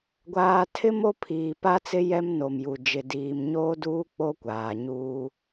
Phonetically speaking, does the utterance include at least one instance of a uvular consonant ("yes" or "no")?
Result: no